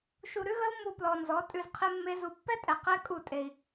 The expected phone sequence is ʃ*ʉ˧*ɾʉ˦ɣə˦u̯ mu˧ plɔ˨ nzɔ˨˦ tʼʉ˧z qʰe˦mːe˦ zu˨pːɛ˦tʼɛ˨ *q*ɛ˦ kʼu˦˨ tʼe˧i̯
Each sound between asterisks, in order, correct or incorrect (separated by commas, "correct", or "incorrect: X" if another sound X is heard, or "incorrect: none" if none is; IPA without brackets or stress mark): incorrect: u˧, correct